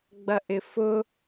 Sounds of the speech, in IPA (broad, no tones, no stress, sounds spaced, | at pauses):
ɡ͡b ɐ ʔ ɪ f ʊ